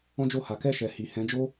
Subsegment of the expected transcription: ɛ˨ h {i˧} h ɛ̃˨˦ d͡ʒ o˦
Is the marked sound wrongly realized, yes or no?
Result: yes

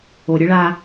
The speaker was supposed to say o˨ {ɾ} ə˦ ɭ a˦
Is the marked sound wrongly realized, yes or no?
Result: yes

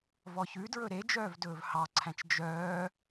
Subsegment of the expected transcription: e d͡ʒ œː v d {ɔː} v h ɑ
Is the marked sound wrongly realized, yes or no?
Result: yes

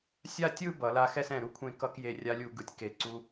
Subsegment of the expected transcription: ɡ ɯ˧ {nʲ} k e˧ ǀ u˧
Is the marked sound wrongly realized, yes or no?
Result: yes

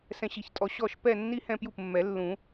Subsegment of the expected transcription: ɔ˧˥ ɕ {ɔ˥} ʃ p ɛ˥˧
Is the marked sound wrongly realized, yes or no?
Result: yes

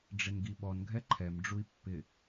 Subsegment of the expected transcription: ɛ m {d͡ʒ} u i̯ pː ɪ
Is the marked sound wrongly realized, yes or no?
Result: yes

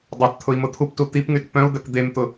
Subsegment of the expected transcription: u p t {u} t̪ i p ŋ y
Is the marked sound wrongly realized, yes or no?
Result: no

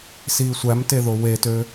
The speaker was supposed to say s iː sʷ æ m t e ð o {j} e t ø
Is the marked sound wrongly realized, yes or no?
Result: yes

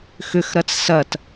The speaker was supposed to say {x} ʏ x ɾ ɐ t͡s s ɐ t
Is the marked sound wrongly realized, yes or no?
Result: no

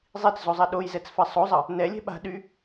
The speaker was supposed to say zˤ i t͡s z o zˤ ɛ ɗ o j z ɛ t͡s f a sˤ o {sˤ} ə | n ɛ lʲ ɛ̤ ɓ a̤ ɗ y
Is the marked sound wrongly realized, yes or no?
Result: yes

